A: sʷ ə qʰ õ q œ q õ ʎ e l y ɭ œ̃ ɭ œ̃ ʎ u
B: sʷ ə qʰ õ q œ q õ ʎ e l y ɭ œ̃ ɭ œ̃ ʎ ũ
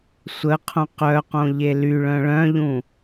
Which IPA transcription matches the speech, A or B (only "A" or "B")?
B